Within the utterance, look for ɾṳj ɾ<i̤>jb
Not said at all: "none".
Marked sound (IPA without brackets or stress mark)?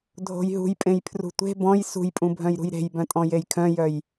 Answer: e̤